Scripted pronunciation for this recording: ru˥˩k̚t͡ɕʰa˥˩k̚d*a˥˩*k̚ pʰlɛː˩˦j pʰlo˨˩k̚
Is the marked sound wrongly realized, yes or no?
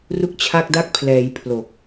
no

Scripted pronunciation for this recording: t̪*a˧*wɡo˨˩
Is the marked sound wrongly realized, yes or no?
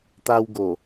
no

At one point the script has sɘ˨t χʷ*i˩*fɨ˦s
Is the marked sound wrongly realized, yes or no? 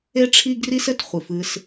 yes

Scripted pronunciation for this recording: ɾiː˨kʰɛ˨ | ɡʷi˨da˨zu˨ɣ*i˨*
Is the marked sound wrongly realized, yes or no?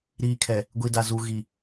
no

